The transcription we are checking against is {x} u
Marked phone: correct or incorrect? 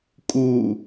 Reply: incorrect